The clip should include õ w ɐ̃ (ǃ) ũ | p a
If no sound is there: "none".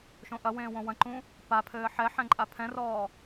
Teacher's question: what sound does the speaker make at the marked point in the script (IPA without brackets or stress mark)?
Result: ǃ